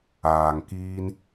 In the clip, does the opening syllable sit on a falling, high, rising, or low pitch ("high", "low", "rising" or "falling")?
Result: low